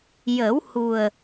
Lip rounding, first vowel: unrounded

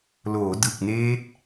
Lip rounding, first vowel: rounded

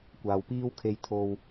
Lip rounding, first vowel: unrounded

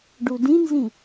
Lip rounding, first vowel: rounded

